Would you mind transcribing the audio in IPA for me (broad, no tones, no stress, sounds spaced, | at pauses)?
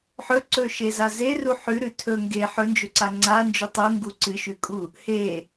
ħ ɵ ǀ ɵ ʃ e z a z e r u ħ ʉ ɾ ʉ tʰ ɵ ŋ ɡ e ħ ɵ n d͡ʒ ɵ ǀ a ŋ͡ǀ a n d͡ʒ ʉ tˤ u ŋ ɡ u ǀ ɨ ʃ ʉ kʼ u | h e